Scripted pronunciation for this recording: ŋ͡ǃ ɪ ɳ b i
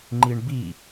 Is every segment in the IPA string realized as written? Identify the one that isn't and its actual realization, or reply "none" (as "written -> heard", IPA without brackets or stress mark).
ɪ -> i